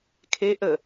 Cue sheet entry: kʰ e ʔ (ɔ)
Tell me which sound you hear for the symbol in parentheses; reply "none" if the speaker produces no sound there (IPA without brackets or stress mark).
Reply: ə